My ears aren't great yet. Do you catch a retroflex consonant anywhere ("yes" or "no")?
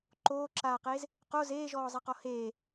no